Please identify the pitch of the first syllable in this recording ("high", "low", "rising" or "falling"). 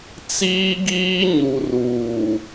high